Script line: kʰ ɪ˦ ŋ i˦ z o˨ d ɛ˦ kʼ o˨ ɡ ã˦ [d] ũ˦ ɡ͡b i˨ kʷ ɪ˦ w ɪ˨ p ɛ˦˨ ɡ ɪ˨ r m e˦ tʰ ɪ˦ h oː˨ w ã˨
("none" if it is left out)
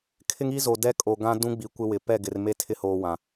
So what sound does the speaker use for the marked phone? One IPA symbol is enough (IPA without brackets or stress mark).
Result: d